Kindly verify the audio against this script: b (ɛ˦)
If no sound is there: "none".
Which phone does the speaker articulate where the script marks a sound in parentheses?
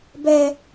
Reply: ɛ˦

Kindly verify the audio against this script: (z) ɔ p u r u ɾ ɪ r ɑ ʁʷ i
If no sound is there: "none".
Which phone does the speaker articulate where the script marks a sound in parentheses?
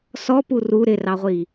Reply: s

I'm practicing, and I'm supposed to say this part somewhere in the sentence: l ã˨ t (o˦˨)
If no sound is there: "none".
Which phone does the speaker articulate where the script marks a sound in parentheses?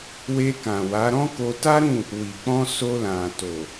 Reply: o˨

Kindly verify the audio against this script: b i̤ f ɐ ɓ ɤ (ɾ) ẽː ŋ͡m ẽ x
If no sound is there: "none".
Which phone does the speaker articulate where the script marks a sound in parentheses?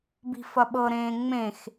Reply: ɾ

